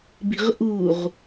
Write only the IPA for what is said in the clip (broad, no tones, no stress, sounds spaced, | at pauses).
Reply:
b i̤ ʁ ʔ u ʁ